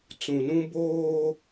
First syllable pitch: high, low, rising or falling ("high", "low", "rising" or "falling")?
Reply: low